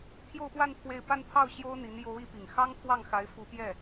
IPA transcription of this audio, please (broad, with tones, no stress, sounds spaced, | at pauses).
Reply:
t̪ʰ j o˥˧ ʊ̯ p w a˥˧ n pʰ w e˥˧ ɪ̯ p a˥˧ n pʰ ɑ˥˩ ʊ̯ ɕ j o˥ ʊ̯ n̪ i˧˥ n j o˧˥ ʊ̯ i˧˥ p i˨˩ ŋ x ɑ˥ ŋ t̪ʰ w ɑ˥˩ ŋ x a˧˥ ɪ̯ f u˧˥ p j ɛ˥˩